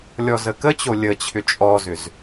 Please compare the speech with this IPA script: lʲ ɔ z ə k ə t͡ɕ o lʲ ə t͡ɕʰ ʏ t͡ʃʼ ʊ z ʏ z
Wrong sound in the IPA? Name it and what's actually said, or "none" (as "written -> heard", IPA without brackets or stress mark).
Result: ʊ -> ɔ